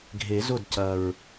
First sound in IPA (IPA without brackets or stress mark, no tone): ɡʱ